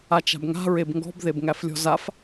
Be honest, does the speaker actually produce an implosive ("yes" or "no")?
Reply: no